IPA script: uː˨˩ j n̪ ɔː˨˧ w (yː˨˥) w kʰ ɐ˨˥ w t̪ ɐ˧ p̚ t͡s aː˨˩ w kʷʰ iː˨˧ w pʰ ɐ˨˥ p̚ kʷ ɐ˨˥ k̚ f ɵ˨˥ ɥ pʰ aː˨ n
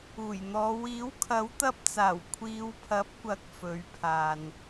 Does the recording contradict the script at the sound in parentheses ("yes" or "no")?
yes